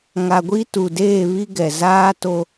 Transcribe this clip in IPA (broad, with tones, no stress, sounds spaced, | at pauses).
ŋ a˨ ɡʷ i˦ t u˨ d eː˦˨ β i˦ ɡ ɛ˨ z aː˦ t o˦